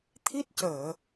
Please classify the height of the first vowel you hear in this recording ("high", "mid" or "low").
high